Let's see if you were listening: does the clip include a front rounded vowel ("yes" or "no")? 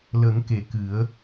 no